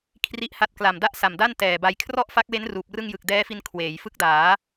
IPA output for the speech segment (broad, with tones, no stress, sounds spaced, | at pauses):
kʰ r i˥˩ ʔ h a˥˩ t̚ k l a˨˩ m d a˥˩ ʔ s a˨˩ m d a˥˩ n t ɛː˨˩ b a˧ j kʰ r ɔ˥˩ ʔ f a˦˥ k̚ w e˦˥ n r uː˨˩ p̚ r ɯ˥˩ ŋ j ɯ˨˩ k̚ d ɛː˦˥ f i˧ n kʰ w eː˩˦ j f ɯ˦˥ k̚ d aː˩˦